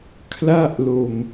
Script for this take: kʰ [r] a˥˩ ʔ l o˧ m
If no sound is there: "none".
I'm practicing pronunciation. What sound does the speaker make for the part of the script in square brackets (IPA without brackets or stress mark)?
l